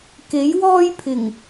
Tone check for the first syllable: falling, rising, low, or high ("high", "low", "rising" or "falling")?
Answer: rising